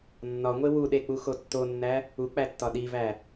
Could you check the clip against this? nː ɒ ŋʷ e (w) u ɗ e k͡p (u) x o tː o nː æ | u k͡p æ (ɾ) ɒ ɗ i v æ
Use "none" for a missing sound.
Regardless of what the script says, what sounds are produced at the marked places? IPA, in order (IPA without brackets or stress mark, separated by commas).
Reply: w, u, tː